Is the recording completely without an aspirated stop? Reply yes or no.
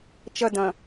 yes